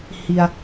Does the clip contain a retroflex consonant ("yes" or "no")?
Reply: no